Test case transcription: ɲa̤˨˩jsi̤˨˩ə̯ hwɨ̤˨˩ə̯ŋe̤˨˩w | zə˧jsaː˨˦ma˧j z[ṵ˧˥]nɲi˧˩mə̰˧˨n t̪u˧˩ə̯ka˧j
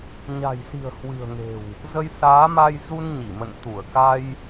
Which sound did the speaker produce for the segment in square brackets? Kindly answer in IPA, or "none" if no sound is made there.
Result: u˧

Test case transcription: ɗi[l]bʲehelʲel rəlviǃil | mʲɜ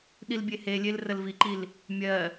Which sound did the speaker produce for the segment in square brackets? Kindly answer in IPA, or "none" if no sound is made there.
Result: l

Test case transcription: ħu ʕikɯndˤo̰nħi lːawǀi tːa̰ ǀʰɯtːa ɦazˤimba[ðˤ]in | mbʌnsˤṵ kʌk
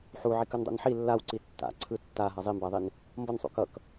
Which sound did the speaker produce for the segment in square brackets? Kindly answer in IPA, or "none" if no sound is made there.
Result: ðˤ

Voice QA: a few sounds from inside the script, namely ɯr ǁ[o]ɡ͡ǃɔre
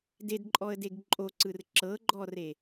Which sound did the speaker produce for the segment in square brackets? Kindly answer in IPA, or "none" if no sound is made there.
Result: ɤ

